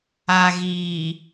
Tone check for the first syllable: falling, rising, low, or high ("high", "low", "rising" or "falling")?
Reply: low